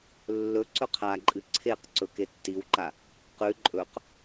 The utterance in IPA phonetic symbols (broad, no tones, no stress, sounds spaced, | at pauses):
lː ɵ ǀ ɵ qʰ a ǃʼ ɨ ǀʰ e q ǀ ɵ k e tː i w ǃ a | q ʉ ǃʼ ɵ q